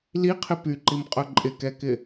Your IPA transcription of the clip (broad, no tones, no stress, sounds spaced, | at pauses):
l i qʰ ɪ p y ǃ i m qʼ œ ǃʼ ɪ k ɛ k ɪ